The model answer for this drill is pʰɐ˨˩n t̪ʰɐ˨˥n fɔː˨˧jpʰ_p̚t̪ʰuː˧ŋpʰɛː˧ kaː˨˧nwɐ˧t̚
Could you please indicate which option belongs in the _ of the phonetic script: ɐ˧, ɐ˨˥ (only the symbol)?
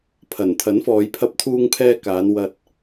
ɐ˧